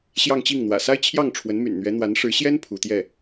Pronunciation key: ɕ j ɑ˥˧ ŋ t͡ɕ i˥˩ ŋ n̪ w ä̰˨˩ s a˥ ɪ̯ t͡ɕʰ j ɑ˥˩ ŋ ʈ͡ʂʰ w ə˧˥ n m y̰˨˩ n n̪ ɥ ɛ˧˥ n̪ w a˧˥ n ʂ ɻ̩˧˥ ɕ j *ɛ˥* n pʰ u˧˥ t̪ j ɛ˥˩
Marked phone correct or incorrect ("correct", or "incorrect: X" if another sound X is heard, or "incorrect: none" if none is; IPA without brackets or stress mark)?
correct